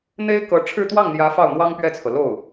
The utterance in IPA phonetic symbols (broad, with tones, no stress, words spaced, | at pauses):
n̪e˥ɪ̯kɤ˧˥ʈ͡ʂʰɻ̩˥˧ t̪wɑ˥˩ŋn̪jä˧˥ fɑ˥˩ʊ̯n̪wɑ˥ŋpɥɛ˥˩t͡sʰɤ˩ lo˥˩ʊ̯